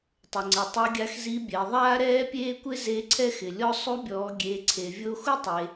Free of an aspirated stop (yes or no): no